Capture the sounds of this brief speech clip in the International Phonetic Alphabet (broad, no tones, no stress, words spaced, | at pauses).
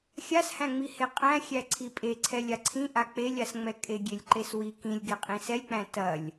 xʲashæ̃ŋ͡mi heqʼæ̃xʲæ ǀʰipʼeǀʰɛ lʲaǀʰĩʔa k͡pelʲasŋ͡mɛ kʼeɡʲelʲǃeswi kĩlʲɡe qʼĩsɛlʲk͡pæ̃ tɐlʲ